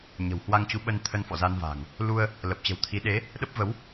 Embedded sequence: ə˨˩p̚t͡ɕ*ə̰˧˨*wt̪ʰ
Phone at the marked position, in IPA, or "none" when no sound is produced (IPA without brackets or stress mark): ə̤˨˩